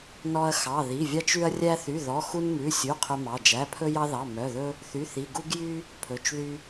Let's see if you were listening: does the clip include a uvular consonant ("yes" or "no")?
yes